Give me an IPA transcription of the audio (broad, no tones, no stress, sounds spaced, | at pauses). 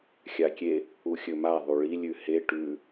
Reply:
xʲ a kʲ e | u xʲ ɵ m a ðˤ u ɭ i lʲ ʉ h e ʈ ʉ